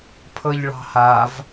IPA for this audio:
pʰɤʎɭɑ̤hav

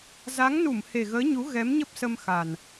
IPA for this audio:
za˨˦ŋnu˧˩m he˨˩ɣəː˨˦ɲu˨˦ ɣɛ˨˦mɲə˦˥p̚sə˧mxa˨˩n

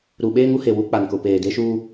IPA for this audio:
ɾu˨ɓeː˦ŋu˦he˨ wu˦k͡pa˨nkʊ˨ peː˨ de˦ʃuː˦

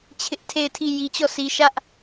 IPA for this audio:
t͡ɕʰɪ˦ʔtʰe˦˨ɪ̯tʰi˦˨ ji˨t͡ɕɔ˦˨si˨ ʃä˦ʔ

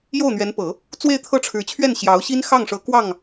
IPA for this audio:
jo˥˩ʊ̯n̪ɥɛ˧˥npɤ˨˩˦ | t͡swe˥˧ɪ̯t̪ʰɤ˥˩ʈ͡ʂʰɻ̩˧˥t͡ɕʰɥɛ˥˩n ɕjɑ˧˥ʊ̯ɕi˥nxɑ˥˩ŋʂɤ˧˥ kwɑ˥˩ŋ

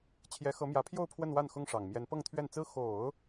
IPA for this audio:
t͡ɕʰjɛ˧˥xɤ˧˥mjä˧˥pʰjo˥˧ʊ̯ pʰwə˥˧nwa˥˩nxʊ˥ŋʂɑ˨˩ŋ mjɛ˧˥npɤ˥˧ŋ t̪ʰɥɛ˥˩nt͡sɹ̩˥ xo˨˩˦ʊ̯

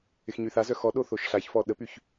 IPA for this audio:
ɪxɲyθazœ xɔɗo θoʃɬaçfɔ ɗəpyç

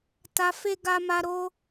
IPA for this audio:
ta˧ fe˦ɡa˦ma˦ ɾo˦

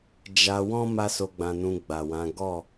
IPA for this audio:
d͡ʒa˧wɔ̃˦ ma˦so˧ ɡ͡bã˧nũ˧ ɡ͡ba˨wã˨˦ ɡɔ˦˨

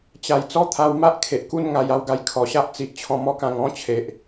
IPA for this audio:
t͡ɕa˨˩j t͡sɔ˦t̪ʰa˧w ma˦ʔkʰe˨ʔku˥˧nŋa˧j a˧wɡa˧j kʰɔ˨˩ɕa˦ʔ t͡si˨ʔt͡ɕʰɔ̃˧ mɔ˦kã˧ŋɔ̃˦t͡ɕʰe˨ʔ

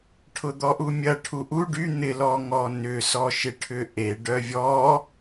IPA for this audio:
ʈʰʊd̪ɔʔumʲɐ ʈʰuʔu ɖy n̪ɪ lɔŋɔnʏ sɔʃɪʈʰʏʔe ɖœvʲɔ

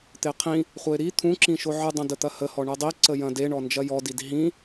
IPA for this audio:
t̪eqʰĩ | χʷəɪ̯ɾi t̪ʰũǁĩʃo ʕɯdˤɐ̃də t̪ɐhəhɔ ɳɯdˤi ǀəjɐ̃de ɳɔnd͡ʒɐjɔdid ɦĩ

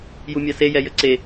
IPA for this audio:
jumʲase jɛjəǀe

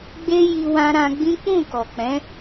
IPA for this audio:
ɡ͡be˦ji˧wã˧ɾã˧ ɡ͡bĩ˦k͡pũ˦˨ kɔ˨ k͡pɛ̃˨˦

